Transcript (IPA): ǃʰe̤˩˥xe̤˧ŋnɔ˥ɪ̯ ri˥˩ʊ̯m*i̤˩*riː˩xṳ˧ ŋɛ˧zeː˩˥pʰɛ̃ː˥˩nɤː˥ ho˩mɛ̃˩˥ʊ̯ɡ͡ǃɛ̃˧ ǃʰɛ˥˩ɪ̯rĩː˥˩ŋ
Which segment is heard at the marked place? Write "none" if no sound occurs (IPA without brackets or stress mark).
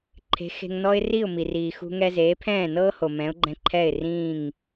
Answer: i˩